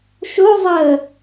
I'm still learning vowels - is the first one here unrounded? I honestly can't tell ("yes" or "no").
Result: no